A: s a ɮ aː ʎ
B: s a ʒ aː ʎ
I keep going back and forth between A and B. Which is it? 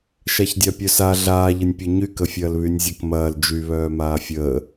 A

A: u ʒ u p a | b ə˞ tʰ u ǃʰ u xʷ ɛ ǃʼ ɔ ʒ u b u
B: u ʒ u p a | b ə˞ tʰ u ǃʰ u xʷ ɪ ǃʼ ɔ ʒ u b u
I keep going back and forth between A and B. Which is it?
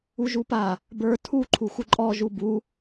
B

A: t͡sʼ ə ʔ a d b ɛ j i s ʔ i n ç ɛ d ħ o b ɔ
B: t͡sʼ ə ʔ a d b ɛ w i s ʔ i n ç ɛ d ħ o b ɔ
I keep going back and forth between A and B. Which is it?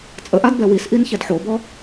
B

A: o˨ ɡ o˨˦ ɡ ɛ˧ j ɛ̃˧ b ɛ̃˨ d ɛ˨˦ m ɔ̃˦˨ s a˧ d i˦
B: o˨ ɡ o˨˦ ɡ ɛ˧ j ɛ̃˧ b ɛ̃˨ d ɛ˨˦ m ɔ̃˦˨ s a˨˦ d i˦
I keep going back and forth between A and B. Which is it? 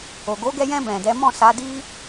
B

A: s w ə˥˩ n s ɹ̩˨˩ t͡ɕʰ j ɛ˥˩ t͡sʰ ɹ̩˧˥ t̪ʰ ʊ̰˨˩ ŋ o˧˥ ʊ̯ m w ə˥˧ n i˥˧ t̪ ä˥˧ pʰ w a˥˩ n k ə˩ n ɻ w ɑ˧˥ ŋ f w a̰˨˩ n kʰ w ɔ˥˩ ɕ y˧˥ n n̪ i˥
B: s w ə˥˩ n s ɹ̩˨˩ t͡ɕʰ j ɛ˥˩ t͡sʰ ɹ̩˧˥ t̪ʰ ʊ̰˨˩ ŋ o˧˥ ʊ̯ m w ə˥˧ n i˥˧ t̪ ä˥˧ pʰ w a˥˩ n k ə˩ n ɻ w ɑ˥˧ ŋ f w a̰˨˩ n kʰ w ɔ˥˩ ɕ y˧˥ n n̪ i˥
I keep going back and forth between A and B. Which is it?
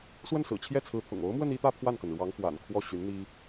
A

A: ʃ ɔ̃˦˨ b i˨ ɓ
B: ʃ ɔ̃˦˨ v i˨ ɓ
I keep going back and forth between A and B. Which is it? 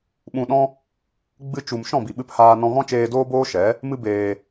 A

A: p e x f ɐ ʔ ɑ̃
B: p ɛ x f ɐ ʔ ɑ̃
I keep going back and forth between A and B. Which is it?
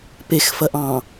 A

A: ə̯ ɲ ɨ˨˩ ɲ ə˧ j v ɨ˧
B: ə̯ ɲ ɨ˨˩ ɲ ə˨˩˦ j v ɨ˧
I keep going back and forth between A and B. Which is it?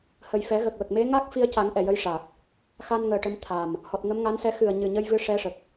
A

